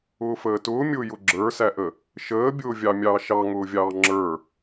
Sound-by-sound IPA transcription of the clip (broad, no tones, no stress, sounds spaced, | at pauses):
ʊː f əː t ʊː mʲ ʊː j ʊ ɡ͡ǁ ə˞ s æ ʔ ə | ʃ əː bʲ ʊː vʲ ɑ mʲ ɑː ʃ ɑ ŋ ʊː vʲ ɑː ŋ͡ǁ ə˞